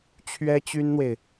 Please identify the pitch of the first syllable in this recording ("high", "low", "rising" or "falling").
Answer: high